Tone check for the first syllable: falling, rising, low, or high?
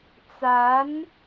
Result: rising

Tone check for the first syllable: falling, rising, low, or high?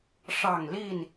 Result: low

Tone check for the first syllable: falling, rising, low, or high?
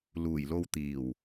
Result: low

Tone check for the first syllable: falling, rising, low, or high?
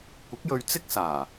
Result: rising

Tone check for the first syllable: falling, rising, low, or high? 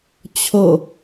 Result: falling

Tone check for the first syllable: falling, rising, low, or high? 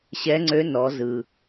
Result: rising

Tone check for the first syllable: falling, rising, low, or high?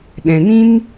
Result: low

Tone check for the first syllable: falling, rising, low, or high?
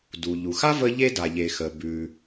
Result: low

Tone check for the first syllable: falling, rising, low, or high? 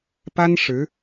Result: high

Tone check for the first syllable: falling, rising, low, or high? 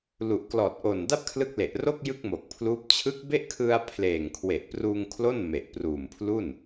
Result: low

